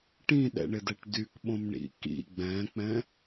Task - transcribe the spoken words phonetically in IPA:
ʈ ĩ ɗ ɛ̰ ɳ ɪ d ɛ ʈ d y k ɓ õ m ɳ ḭ k ḭ ɡ͡b ɛ̃ k͡p ɛ̃

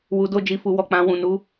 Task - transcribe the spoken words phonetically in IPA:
w u˨ d o˧ d͡ʒ i˨ f u˨ w ɔ˨ k͡p ã˨ w ũ˨ n u˨˦

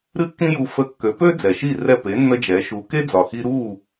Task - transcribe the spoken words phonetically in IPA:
ɾ ɨ˦ kː ĩ˦ j u˧ f ə˧ kː ø˨˦ p ø˦ d͡z ɛ˨ ʃ i˦˨ r ɛ˦˨ p e˨˦ nː ə˦ d͡ʒ ɛ˨˦ ʃ u˨˦ k e˦ d͡z ɒ˨ x i˧ ɾ u˦˨

